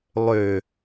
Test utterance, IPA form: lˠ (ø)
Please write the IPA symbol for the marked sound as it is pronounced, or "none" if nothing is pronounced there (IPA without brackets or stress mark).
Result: ø